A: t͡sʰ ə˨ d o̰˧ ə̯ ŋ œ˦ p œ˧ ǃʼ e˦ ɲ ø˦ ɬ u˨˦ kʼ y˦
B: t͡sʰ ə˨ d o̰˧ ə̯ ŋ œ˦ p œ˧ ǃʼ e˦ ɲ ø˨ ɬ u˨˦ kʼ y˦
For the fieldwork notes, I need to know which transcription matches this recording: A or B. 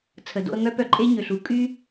B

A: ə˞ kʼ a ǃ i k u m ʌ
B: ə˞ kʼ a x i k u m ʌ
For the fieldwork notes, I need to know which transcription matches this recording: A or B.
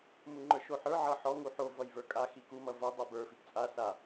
B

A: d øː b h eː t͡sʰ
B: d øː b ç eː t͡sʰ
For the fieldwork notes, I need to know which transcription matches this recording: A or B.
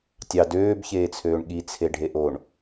B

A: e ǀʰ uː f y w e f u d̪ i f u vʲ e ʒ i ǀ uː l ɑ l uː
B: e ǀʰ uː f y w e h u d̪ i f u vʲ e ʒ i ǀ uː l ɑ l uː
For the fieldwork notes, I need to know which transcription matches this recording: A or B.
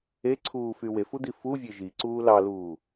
A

